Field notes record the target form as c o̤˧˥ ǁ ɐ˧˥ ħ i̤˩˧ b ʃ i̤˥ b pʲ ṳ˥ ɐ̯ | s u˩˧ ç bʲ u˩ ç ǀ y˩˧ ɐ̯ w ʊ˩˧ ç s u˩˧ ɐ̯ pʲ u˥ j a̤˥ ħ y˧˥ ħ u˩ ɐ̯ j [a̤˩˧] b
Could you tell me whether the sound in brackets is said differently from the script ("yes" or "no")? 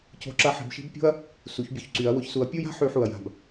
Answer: yes